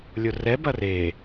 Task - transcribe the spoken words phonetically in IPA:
lʲ ʊ r ɛ b ɐ r e

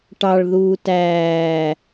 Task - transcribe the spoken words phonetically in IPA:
ʈ ɑ ɭ ð uː t æː

